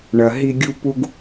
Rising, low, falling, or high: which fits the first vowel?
low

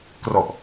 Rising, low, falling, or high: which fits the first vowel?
low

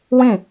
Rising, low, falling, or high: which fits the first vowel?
falling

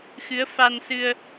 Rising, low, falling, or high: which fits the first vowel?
rising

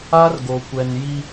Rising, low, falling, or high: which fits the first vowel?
high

